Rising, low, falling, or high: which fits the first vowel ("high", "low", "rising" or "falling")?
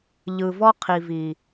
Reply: low